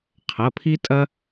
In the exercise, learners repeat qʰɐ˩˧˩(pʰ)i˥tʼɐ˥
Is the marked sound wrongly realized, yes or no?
no